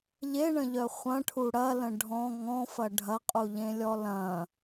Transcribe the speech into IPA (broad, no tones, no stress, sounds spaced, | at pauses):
ʎ e ɳ ə̃ ʎ œ χʷ ɐ̃ ʈʰ u ɽ ɐ l ə̃ ɖʱ ɔ̃ ŋ ɔ̃ f ɐ ɖʱ ɐ qʼ u ʎ ẽ lʲ ɔ l ɐ̃